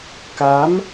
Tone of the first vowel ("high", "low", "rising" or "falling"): rising